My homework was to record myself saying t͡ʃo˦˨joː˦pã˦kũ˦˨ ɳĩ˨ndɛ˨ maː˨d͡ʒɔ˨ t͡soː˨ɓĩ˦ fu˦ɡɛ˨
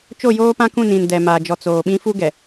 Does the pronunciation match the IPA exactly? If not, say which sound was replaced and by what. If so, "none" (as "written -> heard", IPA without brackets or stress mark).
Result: ɳ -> n